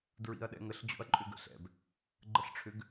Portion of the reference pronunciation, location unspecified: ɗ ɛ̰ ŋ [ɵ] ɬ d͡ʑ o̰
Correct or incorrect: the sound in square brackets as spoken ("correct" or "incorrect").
incorrect